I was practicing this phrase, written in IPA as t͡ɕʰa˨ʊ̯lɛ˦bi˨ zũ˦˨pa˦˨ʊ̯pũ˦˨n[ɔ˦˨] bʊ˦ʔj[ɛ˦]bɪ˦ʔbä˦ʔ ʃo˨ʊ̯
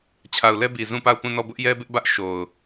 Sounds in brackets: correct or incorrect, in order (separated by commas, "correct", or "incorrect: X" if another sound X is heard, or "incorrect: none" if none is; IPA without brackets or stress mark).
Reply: correct, correct